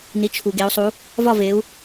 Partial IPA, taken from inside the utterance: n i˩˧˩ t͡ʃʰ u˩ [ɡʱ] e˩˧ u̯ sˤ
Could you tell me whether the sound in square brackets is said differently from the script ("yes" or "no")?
yes